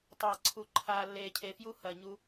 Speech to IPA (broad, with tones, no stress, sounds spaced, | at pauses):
tˤ ɐː˨ ǀʰ u˨ ǃʰ aː˨ lː eː˨ cʰ e˨ f j u˦ h ɐ˨ ɲ u˦